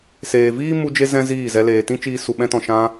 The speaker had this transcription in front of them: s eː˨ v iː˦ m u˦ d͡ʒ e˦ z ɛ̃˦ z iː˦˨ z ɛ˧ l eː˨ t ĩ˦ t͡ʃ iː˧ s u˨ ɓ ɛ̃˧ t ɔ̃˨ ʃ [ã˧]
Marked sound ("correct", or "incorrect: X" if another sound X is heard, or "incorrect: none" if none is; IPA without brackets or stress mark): correct